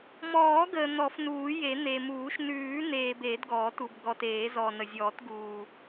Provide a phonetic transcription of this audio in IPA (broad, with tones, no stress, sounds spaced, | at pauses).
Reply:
m ɔː˨˩˦ ɡ əː˨ n̪ ɔ˨˩˦ f n uː˨˩˦ j e˨˩˦ n̪ e˨ m uː˨˩˦ ʃ n ʉː˨˩˦ n̪ eː˨ b e˨˩˦ d ɡ ɔː˨˩˦ t u˨ b ɡ ɔ˨ t eː˨˩˦ z ɔː˨ n ə˨ zʲ ɔː˨˩˦ t ɡ uː˨